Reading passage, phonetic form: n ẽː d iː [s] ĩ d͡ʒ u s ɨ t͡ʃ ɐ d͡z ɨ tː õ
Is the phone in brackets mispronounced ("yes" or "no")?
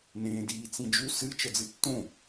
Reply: yes